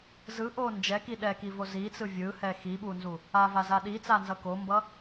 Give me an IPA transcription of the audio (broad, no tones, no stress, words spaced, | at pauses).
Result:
zɯʔo nd͡ʒɛki ɗɛkivo zit͡sɯ vʲɯhɛ xiɓunzu | avaza ɗit͡sanzʌ kombʌ